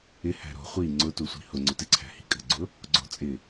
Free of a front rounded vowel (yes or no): yes